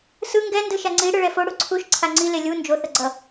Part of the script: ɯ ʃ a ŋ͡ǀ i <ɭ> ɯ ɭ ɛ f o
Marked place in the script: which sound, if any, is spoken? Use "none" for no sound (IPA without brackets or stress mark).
ɽ